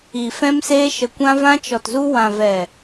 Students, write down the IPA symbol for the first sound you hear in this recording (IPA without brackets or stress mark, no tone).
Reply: i